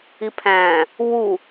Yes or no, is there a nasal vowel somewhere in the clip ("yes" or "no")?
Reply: yes